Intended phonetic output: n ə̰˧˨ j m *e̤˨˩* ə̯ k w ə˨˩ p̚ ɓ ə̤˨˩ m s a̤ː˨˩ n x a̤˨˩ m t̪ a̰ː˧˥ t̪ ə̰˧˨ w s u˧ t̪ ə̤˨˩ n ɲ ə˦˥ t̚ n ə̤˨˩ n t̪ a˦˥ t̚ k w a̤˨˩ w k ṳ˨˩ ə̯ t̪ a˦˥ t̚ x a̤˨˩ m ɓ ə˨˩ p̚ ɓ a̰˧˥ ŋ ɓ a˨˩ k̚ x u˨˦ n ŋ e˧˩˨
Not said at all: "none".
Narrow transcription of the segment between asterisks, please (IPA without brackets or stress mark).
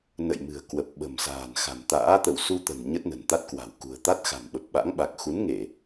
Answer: ɨ̤˨˩